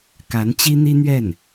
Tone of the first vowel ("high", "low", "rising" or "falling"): rising